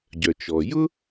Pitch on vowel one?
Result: low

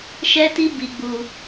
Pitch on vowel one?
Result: high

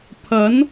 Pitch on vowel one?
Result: rising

